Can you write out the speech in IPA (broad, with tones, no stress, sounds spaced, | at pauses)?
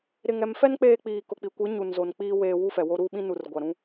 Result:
ɾ ɪ˨ ŋ ɛ˨ m f ɛ˦ n k͡p eː˦ k͡p iː˨ k ʊ˨ k͡p i˨ kʷ i˨˦ ɲ u˨ n z o˨ n k͡p iː˦ w eː˨ w u˦ f ɛ˨ w o˦ ɾ uː˦ ɓ ĩ˦ n u˨ r ɡʷ a˨ ɾ ũ˦